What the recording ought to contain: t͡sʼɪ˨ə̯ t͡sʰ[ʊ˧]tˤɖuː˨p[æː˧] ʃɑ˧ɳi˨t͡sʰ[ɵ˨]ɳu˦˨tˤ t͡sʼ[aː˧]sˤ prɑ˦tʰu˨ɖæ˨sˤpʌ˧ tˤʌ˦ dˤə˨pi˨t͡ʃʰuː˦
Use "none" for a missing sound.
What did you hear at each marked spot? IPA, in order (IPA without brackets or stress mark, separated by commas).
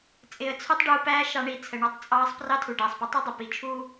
ʊ˧, æː˧, ə˨, ɑː˧